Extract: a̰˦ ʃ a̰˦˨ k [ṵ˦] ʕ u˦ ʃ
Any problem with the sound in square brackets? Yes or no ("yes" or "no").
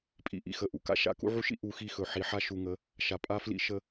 no